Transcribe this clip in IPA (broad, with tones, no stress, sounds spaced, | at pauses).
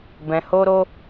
b ɛ̃˧ h o˦ ɾ o˦